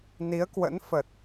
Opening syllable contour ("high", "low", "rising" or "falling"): rising